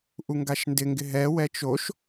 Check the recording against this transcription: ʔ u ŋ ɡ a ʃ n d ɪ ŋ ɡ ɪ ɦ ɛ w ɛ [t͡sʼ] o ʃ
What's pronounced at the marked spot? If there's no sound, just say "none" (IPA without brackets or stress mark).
t͡ʃ